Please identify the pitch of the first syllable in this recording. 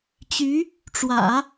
rising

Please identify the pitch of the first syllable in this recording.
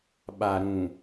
low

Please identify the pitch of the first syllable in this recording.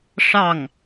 falling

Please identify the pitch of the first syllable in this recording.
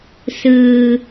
low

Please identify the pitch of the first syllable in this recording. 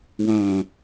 low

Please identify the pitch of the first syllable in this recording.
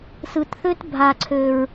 low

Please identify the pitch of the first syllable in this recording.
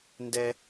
high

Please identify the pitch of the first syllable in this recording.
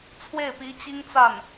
falling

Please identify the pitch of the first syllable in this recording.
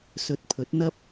rising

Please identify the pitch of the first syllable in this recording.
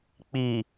low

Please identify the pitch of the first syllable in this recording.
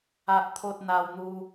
high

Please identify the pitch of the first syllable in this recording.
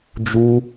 high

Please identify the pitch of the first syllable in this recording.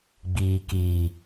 low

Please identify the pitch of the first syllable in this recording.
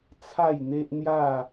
falling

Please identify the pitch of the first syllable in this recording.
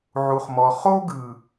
low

